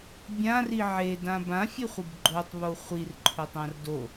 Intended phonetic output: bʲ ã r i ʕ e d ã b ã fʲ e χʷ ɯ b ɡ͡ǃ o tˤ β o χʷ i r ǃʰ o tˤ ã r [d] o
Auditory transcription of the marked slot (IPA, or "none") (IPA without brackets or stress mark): d